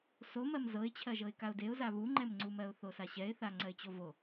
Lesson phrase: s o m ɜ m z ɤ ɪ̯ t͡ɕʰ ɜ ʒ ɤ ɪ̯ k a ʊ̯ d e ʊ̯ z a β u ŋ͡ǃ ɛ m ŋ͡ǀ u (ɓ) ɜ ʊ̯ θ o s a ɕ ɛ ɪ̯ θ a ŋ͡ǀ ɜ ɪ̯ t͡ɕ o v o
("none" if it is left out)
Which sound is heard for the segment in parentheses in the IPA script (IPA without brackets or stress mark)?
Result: m